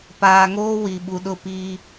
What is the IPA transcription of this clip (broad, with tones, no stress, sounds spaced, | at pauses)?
p aː˨ ŋ oː˦ w i˨ ɓ u˨ ɗ ʊ˦˨ p iː˦